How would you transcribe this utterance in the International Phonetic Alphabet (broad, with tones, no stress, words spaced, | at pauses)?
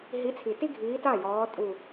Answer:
ɦi˨˦t͡sʰi˨˩ti˦ɡʱiː˨˦ ta˥˩jɔː˨˦ tʼu˨˩